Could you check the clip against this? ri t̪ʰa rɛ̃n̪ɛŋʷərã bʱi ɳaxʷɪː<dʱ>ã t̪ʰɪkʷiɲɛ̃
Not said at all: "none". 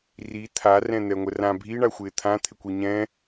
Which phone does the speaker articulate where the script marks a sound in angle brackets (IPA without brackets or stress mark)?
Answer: t̪ʰ